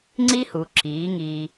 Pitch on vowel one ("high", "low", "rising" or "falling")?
high